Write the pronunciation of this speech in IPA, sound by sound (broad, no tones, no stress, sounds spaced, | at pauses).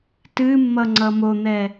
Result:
t ɨ mː ʌ ŋ͡ǀ ʌ m o n̪ ɛ